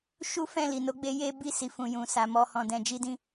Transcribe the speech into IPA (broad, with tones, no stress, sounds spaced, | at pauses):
ʃ u˦ f ɛ̃˦˨ l i˨ n o˨˦ ɡ͡b e˧ j e˦ b i˦˨ s i˨ f ũ˨ j ũ˨ s a˨ m ɔ˧ h ɔ̃˨ d ɛ̃˧ d͡ʒ i˦ d ĩ˦